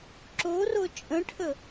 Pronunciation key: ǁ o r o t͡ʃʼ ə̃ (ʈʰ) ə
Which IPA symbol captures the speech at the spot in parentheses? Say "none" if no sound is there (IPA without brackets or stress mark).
ʈʰ